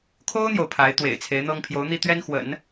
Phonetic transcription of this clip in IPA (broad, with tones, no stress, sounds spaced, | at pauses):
kʰ o˥ ʊ̯ n̪ j o˨ ʊ̯ pʰ a˧˥ ɪ̯ t̪ w ḛ˨˩ ɪ̯ t͡sʰ e˧˥ ɪ̯ n̪ ɤ˥ ŋ pʰ j o˧˥ ʊ̯ n̪ i˥˩ t̪ ɥ ɛ˥ n x w ə̰˨˩˦ n